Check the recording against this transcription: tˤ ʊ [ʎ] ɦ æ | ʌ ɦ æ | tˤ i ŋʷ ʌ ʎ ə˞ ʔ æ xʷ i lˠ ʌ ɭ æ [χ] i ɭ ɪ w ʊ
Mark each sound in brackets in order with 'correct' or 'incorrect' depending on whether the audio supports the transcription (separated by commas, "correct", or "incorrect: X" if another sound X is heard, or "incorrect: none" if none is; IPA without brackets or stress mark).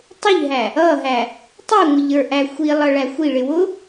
correct, incorrect: xʷ